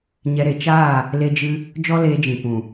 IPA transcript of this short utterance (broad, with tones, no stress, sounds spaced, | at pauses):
ɲ ɛ˧ ɾ e˨ t͡ʃ aː˦˨ | l e˦ d͡ʒ ɨ˦ | d͡ʒ ɔ˦ l eː˧ d͡ʒ ĩ˨ p ũ˨